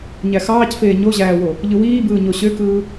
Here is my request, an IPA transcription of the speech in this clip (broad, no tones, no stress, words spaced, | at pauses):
ɲæxɑːcfeː ɲoʑæːwo | ʎɯwiːbɯː ɲoɕøkɯː